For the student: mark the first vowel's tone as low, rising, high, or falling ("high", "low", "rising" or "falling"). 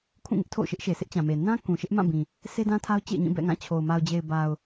falling